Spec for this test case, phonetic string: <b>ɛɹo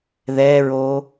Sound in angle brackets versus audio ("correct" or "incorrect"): incorrect